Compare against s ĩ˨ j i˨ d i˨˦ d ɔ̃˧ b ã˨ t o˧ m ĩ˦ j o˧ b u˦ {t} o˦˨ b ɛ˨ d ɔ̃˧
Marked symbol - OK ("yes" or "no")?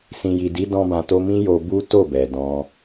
yes